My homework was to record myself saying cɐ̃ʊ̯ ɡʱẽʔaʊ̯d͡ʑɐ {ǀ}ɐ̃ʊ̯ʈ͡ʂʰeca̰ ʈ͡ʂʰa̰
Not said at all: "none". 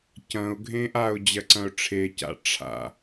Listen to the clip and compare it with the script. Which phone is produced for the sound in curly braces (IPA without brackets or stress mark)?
ǀ